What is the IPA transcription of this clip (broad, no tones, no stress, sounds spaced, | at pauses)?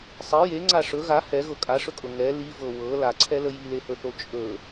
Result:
sˤ i j e ŋ͡ǀ a ʂ ɵ ɣ a h ɛ ɣ ɤ kʼ a ʂ ɵ kʼ ɤ ŋ ɛ l i v ɤ w ɤ l a ǀʰ ɛ l ə j i l e h ɵ θ o t͡ʃʼ ɵ